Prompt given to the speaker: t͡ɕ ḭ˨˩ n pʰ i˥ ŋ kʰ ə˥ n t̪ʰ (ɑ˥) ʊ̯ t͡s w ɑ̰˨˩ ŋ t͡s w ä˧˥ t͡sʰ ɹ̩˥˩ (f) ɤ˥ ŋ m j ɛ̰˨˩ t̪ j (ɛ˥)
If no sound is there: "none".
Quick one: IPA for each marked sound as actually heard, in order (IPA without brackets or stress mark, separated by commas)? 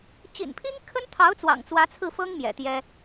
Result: ɑ˧˥, f, ɛ˥